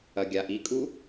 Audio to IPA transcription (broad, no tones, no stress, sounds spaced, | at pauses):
ɐ ɡʲ a ʔ i kʼ u